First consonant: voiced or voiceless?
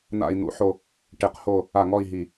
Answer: voiced